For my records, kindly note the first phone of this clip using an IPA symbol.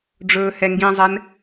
ɖ͡ʐ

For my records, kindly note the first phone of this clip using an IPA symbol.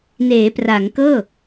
n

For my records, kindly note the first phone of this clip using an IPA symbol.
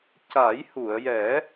c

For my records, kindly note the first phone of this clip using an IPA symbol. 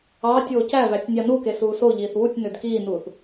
ɑː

